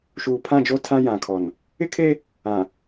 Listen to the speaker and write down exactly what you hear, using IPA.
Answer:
ʃuː˨pʰã˦˨d͡ʒo˦ tʰã˦jã˨kʰɔ˨n | ɪ˦kʰe˦ | ã˨

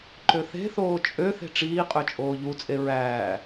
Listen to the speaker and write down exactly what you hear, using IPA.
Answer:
ǃøθe̤θoː t͡ʃʼø θe̤ʈ͡ʂiːqʼø t͡ʃʼoːʎut͡sʼe ɹæː

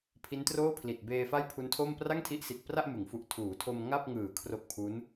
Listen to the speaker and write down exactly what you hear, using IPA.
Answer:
pʰi˦˥ntroː˥˩pʰli˨˩t̚ beː˧fa˥˩jpʰu˦˥ntʰo˥˩m pra˥˩ŋtʰi˦˥ʔsi˨˩t̚pra˥˩ʔ mɯ˩˦ŋfu˨˩ʔ tʰuː˩˦tʰo˧m ŋa˥˩p̚ŋɯː˨˩ kʰro˦˥k̚pʰu˦˥n

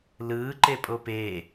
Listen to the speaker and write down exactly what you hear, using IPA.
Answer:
lɯː ǃepʼopeː

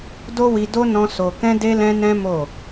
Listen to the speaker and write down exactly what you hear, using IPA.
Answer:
do˦wi˧do˦ nɔ̃˦so˧ kɛ̃˦ de˦lɛ̃˦nɛ̃˦ mo˦˨

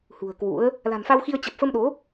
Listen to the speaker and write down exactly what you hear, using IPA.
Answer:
hṳ˨˩ə̯kwṵ˧˥ə̯ | la̤˨˩nfa˧wxi˧ə̯ t͡ɕə˨˩p̚fə˧mɗo˨˦

